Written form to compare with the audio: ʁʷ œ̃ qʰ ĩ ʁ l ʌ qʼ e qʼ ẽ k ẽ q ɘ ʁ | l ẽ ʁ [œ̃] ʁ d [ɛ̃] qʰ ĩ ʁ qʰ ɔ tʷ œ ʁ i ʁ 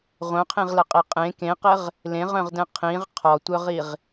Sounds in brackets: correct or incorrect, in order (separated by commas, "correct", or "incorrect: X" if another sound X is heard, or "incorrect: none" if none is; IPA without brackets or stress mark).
correct, correct